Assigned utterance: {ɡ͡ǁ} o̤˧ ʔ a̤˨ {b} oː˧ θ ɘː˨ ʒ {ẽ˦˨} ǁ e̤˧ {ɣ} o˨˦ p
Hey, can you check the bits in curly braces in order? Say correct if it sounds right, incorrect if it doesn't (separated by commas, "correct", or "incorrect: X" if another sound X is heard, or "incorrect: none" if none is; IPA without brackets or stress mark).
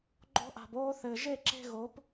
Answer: incorrect: ɡ͡ǃ, correct, incorrect: e˦˨, correct